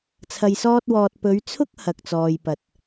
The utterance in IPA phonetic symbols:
t͡sʰɐ˧jsɔː˥t̚wɔː˧t̚ pɵ˨˧ɥt͡sʰʊ˥k̚ hɐ˨k̚t͡sɔː˨jpɐ˨t̚

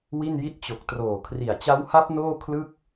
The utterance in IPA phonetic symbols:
wi˥˩nji˥˩t̚ t͡ɕo˨˩k̚ troː˨˩kʰri˨˩a̯t͡ɕa˦˥wha˦˥p̚ noː˥˩kʰlɯ˥˩k̚

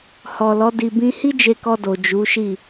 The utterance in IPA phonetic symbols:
hɔ˨lɔ˨˦ di˧bĩ˦ hi˦d͡ʒe˧kɔ˧do˨ d͡ʒu˨˦ʃi˦˨

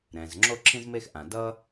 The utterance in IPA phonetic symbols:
ɾɛ̃˩z ŋ͡ǁo˥ǁʰĩ˥zme˥x ʔã˩ dʌː˥

